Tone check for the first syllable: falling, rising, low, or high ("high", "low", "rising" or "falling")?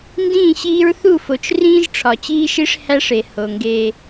falling